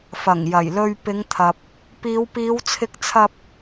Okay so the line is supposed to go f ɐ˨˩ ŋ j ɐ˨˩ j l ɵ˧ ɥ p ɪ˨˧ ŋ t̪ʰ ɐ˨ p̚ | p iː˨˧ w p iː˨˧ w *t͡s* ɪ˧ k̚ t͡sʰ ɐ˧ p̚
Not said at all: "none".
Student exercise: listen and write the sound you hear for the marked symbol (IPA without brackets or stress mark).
t͡sʰ